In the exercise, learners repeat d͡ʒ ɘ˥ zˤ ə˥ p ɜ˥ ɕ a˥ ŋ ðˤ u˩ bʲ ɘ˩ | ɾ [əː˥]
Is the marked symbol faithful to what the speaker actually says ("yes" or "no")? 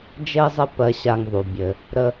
no